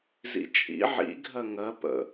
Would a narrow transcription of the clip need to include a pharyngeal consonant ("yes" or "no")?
yes